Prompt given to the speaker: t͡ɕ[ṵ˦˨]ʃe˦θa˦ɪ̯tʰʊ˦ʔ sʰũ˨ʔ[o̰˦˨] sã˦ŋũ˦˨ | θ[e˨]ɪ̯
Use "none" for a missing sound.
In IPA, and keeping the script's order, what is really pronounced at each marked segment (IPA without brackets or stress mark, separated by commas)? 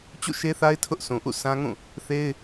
ṵ˦˨, ṵ˦˨, e˦